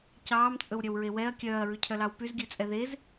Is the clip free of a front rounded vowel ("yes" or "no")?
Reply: no